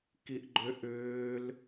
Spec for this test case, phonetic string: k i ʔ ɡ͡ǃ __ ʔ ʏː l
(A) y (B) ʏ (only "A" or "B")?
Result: B